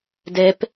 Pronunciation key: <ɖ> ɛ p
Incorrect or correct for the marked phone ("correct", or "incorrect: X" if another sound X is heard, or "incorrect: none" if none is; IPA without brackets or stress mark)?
incorrect: d